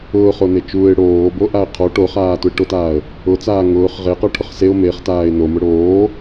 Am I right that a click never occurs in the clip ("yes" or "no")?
yes